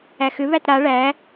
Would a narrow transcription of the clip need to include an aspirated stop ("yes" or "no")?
no